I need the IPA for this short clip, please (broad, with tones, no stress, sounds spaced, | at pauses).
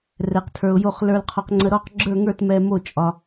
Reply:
r ɛ˨ q tʰ ə˞˨ ʊ̯ j o˦˨ χ l ə˞˨ l qʰ ɒ˨ q ŋ͡ǀ ə˨ ɾ ɔ˦˨ q ɡ͡ǁ ə˞˦˨ ŋ ə˞˦˨ t m ɛ˨ m o˦˨ t͡ʃʼ ɒ˨